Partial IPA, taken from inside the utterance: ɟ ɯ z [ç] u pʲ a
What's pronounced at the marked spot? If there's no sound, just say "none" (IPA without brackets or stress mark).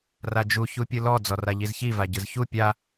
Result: ç